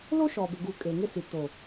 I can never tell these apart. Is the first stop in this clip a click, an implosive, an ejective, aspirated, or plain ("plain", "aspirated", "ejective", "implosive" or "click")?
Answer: plain